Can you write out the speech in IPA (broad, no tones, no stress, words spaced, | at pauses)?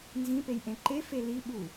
nzĩpejʔẽ ǃefe liɓu